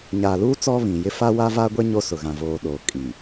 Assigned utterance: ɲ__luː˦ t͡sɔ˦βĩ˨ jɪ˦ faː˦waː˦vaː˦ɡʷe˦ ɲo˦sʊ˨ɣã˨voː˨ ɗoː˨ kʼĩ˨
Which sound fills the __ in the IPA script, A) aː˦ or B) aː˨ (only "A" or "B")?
B